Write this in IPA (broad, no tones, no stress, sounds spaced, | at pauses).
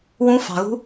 w ũ f ɑ̤ ɣ ṳ